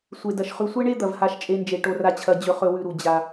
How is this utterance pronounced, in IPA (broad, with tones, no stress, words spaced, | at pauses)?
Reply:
sʷe˩dɐ˩ʃχʉ˨ sʷe˦ɳe˦ d̪ɐ˩vha˨ʃt͡ʃʼe˨nd͡ʒe˩ ʈo˨ra˨t͡ɕʰɐ˨ d͡ʑɵ˨χɵ˨wʉ˨ɾu˩ d͡ʑa˩